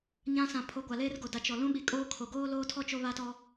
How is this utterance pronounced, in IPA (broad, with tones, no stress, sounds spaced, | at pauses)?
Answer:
ɲ ã˦ s ã˨ pʰ o˨˦ ɡʷ a˨ l eː˦ r ɡ o˨ d a˨ t͡ʃ ɔ˨ l ũ˦ ɓ i˨ kʼ oː˦ kʰ o˨ ɡ oː˦ l oː˦ tʰ ɔ˦ t͡ʃ o˦ β a˦ t ɔ˦